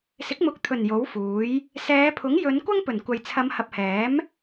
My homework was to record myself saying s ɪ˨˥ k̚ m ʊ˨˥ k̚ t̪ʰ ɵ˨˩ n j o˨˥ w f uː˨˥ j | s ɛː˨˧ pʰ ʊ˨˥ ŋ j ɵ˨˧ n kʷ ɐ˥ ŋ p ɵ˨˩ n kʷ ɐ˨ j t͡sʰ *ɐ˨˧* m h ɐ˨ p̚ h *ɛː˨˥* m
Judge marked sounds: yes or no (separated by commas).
yes, yes